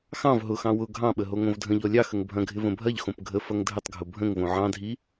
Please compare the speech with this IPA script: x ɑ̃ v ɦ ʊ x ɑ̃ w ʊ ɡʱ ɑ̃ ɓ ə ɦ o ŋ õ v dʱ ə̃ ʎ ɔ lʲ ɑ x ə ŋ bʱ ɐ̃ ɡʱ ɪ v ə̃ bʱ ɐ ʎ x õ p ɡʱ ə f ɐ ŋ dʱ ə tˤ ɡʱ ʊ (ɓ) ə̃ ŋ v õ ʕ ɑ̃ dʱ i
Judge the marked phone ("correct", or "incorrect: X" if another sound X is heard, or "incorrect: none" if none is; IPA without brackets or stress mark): incorrect: bʱ